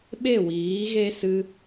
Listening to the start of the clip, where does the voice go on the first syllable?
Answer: falling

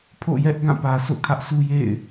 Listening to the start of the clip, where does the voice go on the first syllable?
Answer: falling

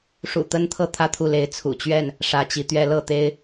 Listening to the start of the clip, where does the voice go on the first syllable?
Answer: low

